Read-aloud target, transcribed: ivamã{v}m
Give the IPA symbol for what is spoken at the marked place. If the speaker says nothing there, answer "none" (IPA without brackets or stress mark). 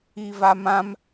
none